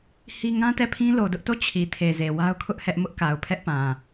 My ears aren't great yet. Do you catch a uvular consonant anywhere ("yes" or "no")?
no